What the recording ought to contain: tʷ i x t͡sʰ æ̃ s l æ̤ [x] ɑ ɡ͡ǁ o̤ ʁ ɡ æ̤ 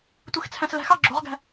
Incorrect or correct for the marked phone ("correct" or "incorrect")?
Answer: correct